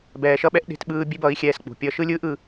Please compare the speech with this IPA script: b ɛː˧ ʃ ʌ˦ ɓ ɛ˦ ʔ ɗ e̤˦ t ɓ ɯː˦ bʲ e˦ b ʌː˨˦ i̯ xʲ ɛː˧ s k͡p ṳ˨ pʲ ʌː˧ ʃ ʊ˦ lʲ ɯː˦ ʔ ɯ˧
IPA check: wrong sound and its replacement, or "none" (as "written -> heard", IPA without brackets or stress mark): ʊ˦ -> ɯ˦